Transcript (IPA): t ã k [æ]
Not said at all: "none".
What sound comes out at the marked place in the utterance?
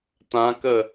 ə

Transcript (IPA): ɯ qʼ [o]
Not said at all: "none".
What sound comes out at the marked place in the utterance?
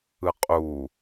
u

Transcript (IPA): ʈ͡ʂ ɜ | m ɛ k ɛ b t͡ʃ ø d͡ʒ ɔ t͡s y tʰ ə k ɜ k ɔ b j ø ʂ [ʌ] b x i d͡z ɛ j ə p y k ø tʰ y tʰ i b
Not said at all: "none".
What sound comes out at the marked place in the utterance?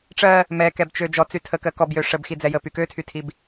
ə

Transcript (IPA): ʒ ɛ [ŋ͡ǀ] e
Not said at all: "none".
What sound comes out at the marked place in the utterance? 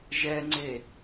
ŋ͡ǀ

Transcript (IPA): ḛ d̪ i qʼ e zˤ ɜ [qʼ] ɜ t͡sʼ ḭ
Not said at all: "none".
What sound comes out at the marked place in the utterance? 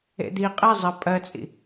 pʼ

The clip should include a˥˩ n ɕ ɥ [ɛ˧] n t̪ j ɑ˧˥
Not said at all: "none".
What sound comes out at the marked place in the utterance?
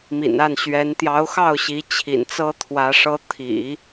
ɛ˧˥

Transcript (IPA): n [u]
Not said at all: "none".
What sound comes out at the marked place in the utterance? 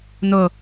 ʊ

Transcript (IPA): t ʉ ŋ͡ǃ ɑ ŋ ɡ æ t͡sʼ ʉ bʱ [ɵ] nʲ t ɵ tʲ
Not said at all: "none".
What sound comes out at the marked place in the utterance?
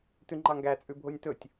o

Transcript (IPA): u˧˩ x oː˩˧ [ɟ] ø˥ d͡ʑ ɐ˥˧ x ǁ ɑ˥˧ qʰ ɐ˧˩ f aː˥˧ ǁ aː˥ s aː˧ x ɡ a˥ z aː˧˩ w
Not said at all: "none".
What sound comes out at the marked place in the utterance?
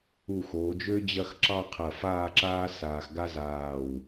d͡ʒ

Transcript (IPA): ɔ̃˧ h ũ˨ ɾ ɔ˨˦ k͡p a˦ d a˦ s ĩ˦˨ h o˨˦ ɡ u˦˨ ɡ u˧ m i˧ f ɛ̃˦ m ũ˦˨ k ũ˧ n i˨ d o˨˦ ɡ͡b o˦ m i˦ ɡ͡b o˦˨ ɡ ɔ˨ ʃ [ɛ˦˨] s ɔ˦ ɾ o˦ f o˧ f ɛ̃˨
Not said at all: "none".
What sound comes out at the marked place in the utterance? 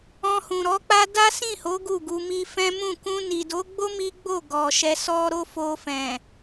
ɛ˧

